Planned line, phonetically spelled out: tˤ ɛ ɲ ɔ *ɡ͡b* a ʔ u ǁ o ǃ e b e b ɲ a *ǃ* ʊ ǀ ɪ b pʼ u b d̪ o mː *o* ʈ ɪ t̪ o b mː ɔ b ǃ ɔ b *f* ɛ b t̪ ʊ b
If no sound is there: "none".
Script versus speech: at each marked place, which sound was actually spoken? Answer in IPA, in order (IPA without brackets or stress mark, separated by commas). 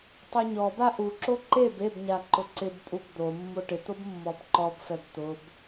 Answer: b, ǃ, o, f